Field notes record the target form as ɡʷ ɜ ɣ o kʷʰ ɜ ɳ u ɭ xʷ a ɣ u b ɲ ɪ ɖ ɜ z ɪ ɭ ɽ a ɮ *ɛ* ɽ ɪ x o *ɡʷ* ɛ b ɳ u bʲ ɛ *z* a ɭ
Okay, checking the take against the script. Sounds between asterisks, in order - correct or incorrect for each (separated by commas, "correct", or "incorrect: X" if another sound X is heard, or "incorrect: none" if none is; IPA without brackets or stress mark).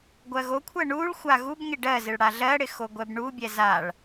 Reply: incorrect: ɜ, correct, correct